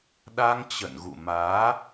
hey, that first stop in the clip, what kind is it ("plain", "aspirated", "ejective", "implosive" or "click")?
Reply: implosive